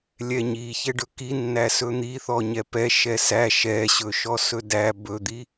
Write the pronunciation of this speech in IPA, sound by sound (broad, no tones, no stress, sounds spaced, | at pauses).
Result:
lʲ ɛ ɲ i ç ɛ ɖ ɵ k i nː æ s ɵ n̪ i θ ɔ ɲ ɛ p ɛ ʃ ɛ s æ ʃ ɛ ɕ ɵ ʃ ɔ s ɵ d æ b ɵ d̪ i